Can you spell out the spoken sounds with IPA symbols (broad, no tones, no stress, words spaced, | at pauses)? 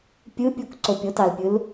pʲɯpʲok ǀopʲotɑlpʲɯl